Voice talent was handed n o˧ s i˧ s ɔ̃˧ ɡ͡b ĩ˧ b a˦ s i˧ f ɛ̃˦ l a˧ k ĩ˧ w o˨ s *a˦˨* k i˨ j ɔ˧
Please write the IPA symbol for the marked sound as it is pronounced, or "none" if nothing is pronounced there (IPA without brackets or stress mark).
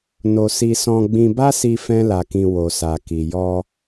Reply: a˨